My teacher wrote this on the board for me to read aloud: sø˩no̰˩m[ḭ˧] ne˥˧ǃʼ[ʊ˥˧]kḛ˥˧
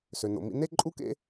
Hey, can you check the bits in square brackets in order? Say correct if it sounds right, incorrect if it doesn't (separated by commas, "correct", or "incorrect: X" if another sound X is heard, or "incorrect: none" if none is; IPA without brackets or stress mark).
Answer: correct, incorrect: u˥˧